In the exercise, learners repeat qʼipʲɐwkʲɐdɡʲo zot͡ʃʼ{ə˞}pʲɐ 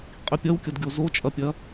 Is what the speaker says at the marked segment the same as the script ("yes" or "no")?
no